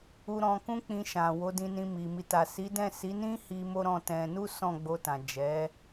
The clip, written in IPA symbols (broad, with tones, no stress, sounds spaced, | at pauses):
u˧ ɾ ɔ̃˧ k ũ˦ k͡p ĩ˧ ʃ ã˨ w o˨˦ d ĩ˧ n ĩ˧ m i˨ m i˨ t a˨ s i˨˦ d ɛ̃˦˨ s i˨˦ n ĩ˦ h i˧ m o˦ ɾ ɔ̃˦˨ t ɛ̃˧ n u˦ s ɔ̃˦˨ ɡ͡b o˧ t ã˨ d͡ʒ ɛ˨˦